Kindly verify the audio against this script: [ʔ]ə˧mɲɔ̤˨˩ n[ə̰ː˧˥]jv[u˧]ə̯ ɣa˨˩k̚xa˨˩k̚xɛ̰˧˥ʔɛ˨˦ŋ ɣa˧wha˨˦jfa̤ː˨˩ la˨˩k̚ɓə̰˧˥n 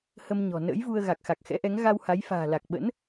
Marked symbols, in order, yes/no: no, yes, yes

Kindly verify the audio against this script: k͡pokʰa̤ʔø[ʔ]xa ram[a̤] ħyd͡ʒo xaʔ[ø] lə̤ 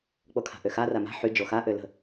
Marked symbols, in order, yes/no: no, yes, yes

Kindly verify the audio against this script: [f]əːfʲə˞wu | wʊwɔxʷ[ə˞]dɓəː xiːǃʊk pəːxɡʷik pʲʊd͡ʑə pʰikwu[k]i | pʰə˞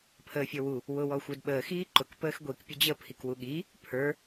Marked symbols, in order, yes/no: no, yes, no

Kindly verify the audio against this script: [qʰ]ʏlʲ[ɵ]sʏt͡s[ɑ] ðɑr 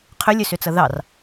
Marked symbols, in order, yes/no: yes, yes, no

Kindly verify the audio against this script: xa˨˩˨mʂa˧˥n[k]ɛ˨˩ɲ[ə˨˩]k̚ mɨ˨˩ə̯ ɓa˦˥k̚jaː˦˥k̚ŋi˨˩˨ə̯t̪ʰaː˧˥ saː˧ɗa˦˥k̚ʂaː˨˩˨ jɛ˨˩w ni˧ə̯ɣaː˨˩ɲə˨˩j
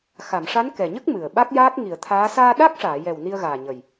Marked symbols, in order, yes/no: yes, no

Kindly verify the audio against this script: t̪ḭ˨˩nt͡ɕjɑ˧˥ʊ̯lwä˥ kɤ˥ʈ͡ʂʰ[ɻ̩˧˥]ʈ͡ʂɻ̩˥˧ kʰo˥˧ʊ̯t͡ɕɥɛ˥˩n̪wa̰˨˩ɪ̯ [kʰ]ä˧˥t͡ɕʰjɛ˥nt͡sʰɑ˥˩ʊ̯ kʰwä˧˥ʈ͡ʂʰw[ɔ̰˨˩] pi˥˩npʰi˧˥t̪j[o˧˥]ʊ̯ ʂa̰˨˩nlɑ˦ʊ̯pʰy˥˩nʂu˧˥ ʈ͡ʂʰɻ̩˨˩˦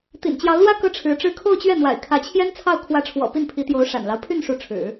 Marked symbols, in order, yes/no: yes, yes, yes, yes

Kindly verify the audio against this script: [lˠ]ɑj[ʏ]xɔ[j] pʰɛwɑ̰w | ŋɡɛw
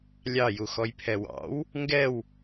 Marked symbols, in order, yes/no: no, no, yes

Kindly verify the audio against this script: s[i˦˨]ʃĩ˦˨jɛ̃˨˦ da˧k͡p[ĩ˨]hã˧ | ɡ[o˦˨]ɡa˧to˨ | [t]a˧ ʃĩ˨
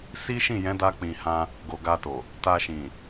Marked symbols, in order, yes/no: no, yes, no, yes

